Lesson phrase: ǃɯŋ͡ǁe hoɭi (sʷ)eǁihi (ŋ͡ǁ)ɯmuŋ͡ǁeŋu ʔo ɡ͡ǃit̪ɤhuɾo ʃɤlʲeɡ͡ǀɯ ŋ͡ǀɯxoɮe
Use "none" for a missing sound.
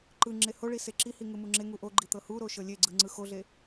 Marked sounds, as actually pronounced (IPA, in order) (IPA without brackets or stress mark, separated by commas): s, ŋ